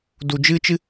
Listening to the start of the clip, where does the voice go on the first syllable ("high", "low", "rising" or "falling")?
low